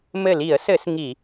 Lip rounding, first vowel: unrounded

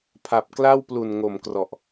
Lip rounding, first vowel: unrounded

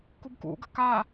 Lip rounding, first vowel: rounded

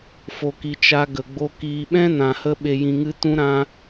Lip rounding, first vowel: rounded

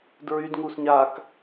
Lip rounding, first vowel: rounded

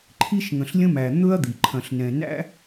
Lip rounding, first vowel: unrounded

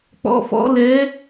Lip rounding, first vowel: rounded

